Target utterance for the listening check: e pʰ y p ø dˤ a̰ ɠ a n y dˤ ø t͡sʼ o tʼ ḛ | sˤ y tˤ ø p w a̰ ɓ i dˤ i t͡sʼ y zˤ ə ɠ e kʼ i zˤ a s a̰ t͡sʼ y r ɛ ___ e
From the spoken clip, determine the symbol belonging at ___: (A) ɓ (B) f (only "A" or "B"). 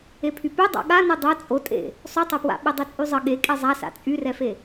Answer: B